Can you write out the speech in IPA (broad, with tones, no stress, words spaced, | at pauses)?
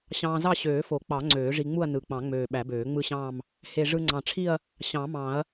ɕɑ̃ː˧zɑ˥˧ɕøː˨˩˦ fo˨˩˦ k͡pɑ˨˩˦ ŋ͡ǀøː˨˩˦ʐi˧ŋ͡mu˥˧ɐ̯ nɯ˨˩k͡pɑ̃˨˩˦ŋ͡møː˨˩ ɓæ˨˩˦bøː˨˩˦ŋ͡mɯ˥˧ɕɑ̃ː˥˧m | he˨˩ ʐɯ˧ŋ͡ǀɑ̃˨˩ʈ͡ʂʰi˥˧ɐ̯ | ɕɑ̃˨˩˦mɑ̃˨˩˦ɐ̯